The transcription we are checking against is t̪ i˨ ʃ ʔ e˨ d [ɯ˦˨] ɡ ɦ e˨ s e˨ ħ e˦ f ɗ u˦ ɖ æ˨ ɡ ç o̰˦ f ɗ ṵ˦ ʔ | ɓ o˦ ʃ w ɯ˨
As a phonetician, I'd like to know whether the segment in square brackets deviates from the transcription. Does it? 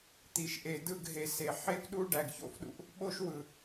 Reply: no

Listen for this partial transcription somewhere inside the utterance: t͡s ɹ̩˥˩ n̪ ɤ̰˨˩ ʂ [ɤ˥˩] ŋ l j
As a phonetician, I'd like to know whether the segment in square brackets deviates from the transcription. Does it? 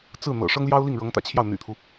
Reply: yes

